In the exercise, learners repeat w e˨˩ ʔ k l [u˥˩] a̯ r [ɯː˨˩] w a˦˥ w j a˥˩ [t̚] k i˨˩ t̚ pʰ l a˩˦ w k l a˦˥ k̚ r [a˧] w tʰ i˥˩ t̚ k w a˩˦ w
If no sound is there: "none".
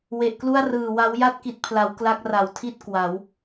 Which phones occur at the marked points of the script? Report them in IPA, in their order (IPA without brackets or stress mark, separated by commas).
u˥˩, ɯː˨˩, t̚, a˩˦